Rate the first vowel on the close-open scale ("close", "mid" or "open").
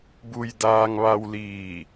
close